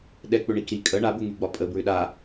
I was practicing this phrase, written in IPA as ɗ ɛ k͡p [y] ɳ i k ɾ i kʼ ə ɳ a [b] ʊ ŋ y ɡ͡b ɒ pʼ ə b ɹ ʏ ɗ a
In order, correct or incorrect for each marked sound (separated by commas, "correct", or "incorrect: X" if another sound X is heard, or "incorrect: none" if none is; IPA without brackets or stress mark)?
incorrect: ʏ, correct